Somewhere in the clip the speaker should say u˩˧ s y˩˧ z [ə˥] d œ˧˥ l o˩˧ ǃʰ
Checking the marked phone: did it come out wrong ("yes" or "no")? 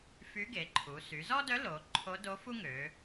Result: yes